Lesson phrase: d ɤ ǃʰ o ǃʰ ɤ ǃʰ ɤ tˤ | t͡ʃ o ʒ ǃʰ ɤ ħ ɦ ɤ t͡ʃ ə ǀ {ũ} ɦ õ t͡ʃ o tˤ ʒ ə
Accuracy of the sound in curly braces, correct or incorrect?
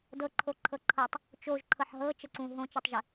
correct